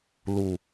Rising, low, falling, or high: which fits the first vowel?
low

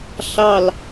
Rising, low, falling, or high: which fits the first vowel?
falling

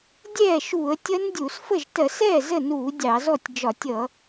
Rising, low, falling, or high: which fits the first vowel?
falling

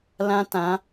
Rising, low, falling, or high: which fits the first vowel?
high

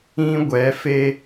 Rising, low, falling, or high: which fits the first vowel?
high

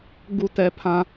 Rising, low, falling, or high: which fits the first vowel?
high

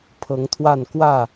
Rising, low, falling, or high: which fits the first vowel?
rising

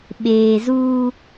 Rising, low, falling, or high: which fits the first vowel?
low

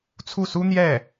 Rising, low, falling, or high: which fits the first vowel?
falling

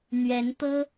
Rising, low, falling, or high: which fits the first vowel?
rising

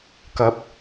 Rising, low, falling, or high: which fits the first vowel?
rising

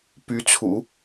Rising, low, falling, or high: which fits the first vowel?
rising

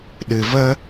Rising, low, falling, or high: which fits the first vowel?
low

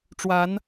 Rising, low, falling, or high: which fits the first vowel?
rising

